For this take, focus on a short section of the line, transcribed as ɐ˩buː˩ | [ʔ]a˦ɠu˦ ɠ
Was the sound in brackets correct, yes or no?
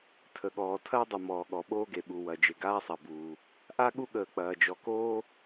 yes